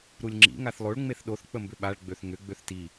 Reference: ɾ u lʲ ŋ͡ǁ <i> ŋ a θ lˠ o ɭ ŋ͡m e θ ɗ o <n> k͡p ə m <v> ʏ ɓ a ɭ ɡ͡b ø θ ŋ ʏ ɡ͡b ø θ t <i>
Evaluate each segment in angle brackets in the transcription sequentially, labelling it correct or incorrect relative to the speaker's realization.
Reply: incorrect: ḭ, incorrect: θ, incorrect: b, correct

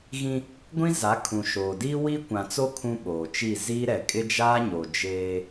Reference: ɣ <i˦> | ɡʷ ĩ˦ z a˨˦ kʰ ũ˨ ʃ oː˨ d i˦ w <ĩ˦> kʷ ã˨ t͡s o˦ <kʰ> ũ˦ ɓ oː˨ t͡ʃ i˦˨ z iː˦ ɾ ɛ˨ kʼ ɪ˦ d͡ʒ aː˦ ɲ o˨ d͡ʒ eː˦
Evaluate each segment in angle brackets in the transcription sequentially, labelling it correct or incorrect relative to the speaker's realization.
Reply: incorrect: ĩ˦, incorrect: i˦, correct

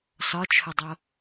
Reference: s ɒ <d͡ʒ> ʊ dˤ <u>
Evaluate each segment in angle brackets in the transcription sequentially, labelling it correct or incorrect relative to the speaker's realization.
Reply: incorrect: t͡ʃʰ, incorrect: o

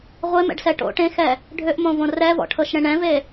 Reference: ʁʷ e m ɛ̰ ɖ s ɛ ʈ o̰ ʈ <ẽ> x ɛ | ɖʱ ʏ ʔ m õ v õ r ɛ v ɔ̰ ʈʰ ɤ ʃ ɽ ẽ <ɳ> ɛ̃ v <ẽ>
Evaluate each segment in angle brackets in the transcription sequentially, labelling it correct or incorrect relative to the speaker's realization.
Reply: correct, correct, incorrect: e

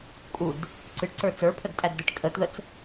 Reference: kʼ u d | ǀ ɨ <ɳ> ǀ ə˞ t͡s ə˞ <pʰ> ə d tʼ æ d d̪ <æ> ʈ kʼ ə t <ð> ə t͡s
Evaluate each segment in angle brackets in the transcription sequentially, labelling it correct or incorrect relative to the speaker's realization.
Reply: incorrect: ʈ, correct, incorrect: ɛ, correct

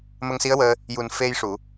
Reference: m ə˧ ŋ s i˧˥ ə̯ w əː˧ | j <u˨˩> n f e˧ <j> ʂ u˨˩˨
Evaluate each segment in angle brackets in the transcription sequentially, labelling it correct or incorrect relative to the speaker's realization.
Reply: correct, correct

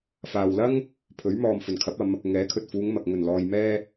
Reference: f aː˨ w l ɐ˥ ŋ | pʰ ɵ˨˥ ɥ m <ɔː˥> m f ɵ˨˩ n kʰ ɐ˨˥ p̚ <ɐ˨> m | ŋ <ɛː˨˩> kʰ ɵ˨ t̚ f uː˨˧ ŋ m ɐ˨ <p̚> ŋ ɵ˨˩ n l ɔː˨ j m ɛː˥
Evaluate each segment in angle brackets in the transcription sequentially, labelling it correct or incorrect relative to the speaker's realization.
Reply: incorrect: ɔː˨, incorrect: ɐ˨˧, incorrect: ɛː˨˥, incorrect: k̚

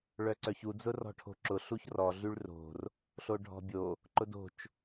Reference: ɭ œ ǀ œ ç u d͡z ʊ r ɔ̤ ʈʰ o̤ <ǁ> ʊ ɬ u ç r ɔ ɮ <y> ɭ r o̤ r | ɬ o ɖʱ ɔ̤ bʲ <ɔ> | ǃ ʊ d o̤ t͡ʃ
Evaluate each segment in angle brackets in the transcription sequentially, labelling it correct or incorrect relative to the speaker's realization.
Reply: correct, correct, incorrect: o

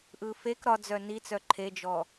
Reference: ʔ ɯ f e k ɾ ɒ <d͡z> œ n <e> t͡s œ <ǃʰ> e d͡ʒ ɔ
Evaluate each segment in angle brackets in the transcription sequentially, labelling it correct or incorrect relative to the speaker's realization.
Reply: correct, incorrect: i, correct

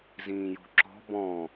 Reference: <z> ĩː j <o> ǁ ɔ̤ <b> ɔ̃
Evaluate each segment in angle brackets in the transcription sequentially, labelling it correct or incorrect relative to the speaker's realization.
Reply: correct, incorrect: o̤, correct

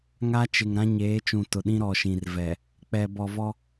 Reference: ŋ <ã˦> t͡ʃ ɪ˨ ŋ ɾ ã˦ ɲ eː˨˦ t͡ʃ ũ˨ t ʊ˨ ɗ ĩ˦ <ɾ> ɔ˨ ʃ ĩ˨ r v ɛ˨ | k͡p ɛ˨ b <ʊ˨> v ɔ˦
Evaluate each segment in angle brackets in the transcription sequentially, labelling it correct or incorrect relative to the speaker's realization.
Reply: incorrect: a˦, correct, incorrect: ɔ˨

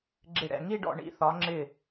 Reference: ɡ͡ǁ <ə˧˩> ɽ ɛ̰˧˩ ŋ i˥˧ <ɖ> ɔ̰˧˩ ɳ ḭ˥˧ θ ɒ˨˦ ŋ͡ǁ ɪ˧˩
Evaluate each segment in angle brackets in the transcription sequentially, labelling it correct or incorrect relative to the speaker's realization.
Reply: incorrect: ɪ˧˩, correct

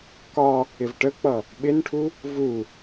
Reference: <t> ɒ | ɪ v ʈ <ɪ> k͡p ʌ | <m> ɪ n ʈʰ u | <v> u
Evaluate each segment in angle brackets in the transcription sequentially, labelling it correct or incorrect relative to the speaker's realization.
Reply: incorrect: k, incorrect: ə, incorrect: ɓ, correct

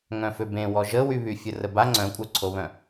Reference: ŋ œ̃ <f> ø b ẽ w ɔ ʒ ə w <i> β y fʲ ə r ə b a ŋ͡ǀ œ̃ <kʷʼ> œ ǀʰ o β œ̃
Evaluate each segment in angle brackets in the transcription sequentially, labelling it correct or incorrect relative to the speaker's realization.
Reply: correct, incorrect: y, correct

